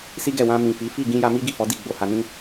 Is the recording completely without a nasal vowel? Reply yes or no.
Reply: no